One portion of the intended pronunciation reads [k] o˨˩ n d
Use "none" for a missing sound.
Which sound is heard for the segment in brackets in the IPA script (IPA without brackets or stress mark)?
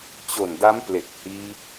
t͡ɕ